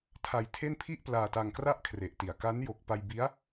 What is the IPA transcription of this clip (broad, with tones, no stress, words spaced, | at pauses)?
tʰa˧jtʰe˥˩n pʰi˥˩ʔplaː˧ta˧ŋkra˥˩ʔ kʰre˨˩ʔti˨˩a̯ ka˦˥njo˨˩k̚pa˧j bi˦˥a̯